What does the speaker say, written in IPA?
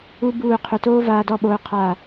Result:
u˦ b uː˦˨ qʰ ø˧ t oː˦ v aː˧ d ɔ˦˨ ɓ oː˧ qʰ a˦˨

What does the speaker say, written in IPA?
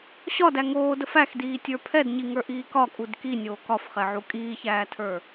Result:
ɕ ɒ d æ ŋ oː d ə f æ x d iː tʲ ə˞ pʰ ɛ d ɲ i ŋ ə˞ ʔ iː k ɒ kʼ u d k i nʲ oː k ɒ f χ ɛ ʕ u kʼ iː ç æː tʰ ə˞

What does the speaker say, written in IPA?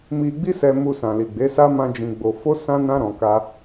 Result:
m i˧ ɡ͡b i˦ s ɛ˧ m u˧ s ã˨ l i˨ ɡ͡b e˨˦ s a˦ m ã˦ d͡ʒ ĩ˧ ɡ͡b o˧ f o˦ s ã˦ n ã˦ ɾ ɔ̃˧ k a˦

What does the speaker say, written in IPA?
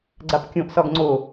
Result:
ɡ͡ǀ a p kʲ õ ʔ s ɒ ɡ ŋ͡ǀ o

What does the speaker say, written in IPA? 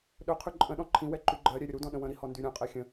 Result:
ɗ ɵ qʰ ʉ ǃʼ ə̃ ɗ ɔ̃ ǃʰ ĩ w ɛ ǃ y ɡ͡ǃ ɜ ɾʲ ɛ ɾʲ ɵ ɾ u d ɔ̃ ɗ ə̃ w ə̃ ɾ i h ɔ n d y ɾʲ ɔ̃ qʼ ɛ xʲ ə̃

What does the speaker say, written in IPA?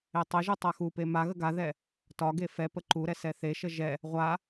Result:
e tˤ ə ʒ u tˤ a x u p e m a ɣ ə ɡ a ð ɛ | t ɒ ɡ e f ɛ p ə ǃ u ɾ ɛ s ɛ θ e ʃ ə ʒ ɛ | ʁʷ a

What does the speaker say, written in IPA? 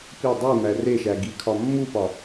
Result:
p i dˤ i m æ r e ʃ æ ɡ i kʰ ɒ mː u p ɒ

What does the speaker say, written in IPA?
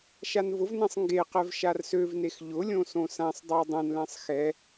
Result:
ʃ a n v ʊ v n ɛ̃ sˤ ŋ ɡ e q ɛ v ʃ a r s ø v n e x ʎ ʊ lʲ õ s õ s ã sˤ dˤ a dˤ ɛ̃ n l ɛ̃ sˤ x ɛ

